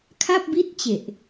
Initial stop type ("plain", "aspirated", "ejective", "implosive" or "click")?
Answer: aspirated